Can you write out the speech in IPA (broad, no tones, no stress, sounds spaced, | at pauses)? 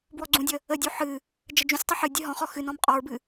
b w ɔ ɡ͡ǀ ũ dʲ ə | ə dʲ u ħ ɨ | d͡ʒ ə d͡ʒ ũ sʲ tˤ ə ħ ɨ dʲ ɨ ɦ ɔ̃ χ ɔ x ɨ n ɔ̃ m qʼ ɔ ɹ b ɨ